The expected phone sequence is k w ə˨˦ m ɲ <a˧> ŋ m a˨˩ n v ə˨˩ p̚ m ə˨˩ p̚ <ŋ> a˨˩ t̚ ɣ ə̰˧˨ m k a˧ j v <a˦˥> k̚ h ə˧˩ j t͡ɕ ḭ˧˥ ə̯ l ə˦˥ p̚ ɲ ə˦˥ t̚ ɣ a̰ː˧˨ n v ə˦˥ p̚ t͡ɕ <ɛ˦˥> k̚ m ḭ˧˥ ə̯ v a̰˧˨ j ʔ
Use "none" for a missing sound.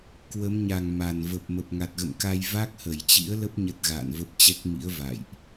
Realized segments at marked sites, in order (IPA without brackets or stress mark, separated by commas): a˨˩, ŋ, a˦˥, ɛ˦˥